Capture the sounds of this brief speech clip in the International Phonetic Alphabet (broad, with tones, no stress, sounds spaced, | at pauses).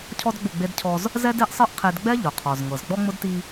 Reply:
cʰ ɔ˦ d ɡ͡b ʊ˦˨ ɡ͡b e˦ d cʰ ɔ˦ z | z ɛ˦ d e˦ ʔ sˤ ɤ˦ ʔ qʰ e˨ d ɡ͡b ɛ˦ ʎ ʊ˨ qʰ ɔ˨ z ŋ ɤ˨ z ɡ͡b ɔ˦ ŋ͡m ʊ˦ d t i˦